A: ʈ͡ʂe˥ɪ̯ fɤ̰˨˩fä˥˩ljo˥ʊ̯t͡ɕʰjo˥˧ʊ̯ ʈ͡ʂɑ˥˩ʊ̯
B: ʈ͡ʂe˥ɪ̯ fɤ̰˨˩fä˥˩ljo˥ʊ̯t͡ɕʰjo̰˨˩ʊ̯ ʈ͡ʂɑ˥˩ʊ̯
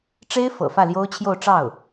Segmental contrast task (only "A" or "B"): A